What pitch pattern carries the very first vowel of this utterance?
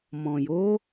low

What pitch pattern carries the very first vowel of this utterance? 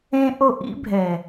high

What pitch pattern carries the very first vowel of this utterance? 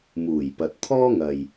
low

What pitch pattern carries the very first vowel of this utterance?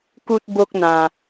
high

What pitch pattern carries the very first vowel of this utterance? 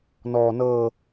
low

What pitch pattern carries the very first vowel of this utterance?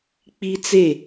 high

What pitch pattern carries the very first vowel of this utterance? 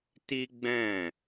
high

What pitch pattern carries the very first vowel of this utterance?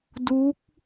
rising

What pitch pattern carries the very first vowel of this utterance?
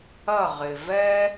falling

